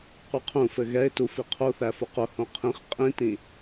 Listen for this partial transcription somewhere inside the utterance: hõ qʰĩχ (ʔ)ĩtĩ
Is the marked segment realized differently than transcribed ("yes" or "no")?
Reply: yes